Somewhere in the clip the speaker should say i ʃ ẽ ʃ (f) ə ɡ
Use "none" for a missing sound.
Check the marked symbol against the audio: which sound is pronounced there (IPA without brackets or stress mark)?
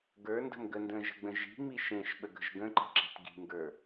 ɓ